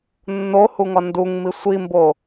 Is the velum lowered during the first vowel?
no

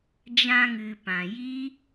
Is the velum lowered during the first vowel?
yes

